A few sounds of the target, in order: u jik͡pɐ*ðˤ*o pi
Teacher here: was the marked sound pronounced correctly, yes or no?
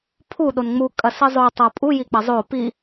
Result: no